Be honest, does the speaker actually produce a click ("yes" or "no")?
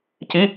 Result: no